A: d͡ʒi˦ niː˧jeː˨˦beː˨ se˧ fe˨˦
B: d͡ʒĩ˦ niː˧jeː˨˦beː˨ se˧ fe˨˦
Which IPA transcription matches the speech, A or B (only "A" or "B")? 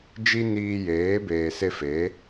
A